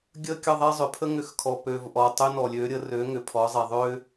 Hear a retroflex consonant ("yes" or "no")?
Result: no